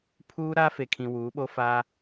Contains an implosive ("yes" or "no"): yes